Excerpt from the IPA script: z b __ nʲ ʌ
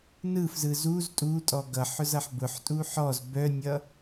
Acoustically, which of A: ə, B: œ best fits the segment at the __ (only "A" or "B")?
B